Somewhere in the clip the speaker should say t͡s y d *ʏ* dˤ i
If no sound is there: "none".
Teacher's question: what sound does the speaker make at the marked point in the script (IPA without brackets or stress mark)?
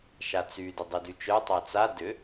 ʏ